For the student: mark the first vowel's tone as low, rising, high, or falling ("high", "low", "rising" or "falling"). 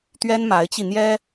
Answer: high